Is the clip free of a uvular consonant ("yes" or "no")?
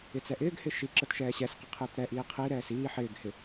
no